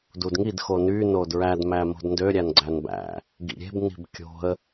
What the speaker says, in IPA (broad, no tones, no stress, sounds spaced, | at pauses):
d u d ŋ i d x o n y n o d ɹ æ d m æ m o̤ d n d ø ɾʲ æ n ɡ͡ǀ æ n b æ̰ | ɡ ḭ ɾʲ e̤ b n i̤ b kʲ o̤ ə̯